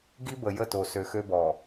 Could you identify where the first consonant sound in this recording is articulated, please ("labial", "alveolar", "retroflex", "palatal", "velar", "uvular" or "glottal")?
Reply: velar